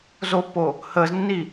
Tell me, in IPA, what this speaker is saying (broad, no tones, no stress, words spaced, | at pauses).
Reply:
zopːo | həːznːi